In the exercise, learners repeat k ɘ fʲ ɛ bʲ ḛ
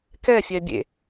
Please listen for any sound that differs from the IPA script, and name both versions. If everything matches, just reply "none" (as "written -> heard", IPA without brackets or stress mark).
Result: ɘ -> ɛ